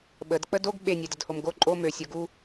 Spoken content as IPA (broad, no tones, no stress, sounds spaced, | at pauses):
ɓ ə d k͡p ə d o ɡ ɓ e nʲ ɛ d ə d h o m ɡ o ǃʼ o m ø sʲ o ɡ u